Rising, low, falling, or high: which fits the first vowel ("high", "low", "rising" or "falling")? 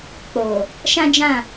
low